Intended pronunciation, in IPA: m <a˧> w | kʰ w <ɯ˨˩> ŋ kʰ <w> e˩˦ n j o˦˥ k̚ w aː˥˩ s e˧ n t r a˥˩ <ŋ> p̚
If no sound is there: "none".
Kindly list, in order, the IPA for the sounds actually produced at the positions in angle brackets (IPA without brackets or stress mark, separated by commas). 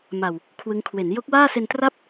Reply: a˨˩, ɯ˦˥, w, none